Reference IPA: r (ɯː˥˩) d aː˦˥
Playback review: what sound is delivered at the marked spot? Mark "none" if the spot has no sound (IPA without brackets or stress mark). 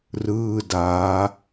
ɯː˥˩